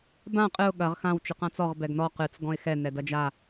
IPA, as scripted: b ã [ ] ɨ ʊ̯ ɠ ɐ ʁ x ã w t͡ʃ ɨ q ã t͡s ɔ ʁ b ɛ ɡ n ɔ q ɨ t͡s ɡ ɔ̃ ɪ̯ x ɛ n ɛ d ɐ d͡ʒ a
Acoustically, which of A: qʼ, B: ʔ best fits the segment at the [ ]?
A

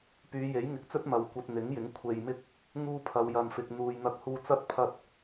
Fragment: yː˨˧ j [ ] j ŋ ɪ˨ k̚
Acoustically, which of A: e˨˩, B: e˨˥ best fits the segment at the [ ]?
B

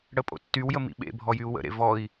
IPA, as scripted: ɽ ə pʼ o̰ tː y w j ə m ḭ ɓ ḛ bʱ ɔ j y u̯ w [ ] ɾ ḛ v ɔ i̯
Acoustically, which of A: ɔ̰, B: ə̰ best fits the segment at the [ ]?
B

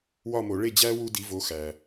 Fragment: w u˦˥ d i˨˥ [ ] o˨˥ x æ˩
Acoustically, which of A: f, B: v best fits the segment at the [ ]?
B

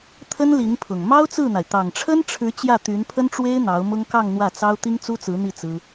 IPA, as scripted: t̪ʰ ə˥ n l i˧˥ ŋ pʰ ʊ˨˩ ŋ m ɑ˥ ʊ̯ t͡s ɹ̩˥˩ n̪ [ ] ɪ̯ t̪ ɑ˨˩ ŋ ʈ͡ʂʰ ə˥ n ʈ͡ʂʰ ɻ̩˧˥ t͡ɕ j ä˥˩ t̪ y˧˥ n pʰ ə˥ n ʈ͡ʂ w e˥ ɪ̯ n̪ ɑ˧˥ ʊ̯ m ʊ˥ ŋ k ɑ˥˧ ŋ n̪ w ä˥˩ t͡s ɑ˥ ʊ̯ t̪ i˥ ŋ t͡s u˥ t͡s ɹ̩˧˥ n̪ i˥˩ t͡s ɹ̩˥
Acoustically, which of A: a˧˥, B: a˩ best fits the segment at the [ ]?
B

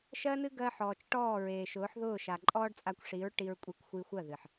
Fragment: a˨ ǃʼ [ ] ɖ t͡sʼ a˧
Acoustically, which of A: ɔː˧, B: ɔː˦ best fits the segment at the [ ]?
B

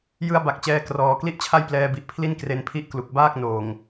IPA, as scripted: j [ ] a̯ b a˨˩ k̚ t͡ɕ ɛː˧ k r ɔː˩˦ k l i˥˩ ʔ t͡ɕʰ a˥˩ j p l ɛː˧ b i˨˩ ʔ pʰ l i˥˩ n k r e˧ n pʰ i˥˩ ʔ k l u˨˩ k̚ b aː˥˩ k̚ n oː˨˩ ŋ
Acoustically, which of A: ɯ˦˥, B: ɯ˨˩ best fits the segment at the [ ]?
A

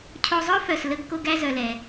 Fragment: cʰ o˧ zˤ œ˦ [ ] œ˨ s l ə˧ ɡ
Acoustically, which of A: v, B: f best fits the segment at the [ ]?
B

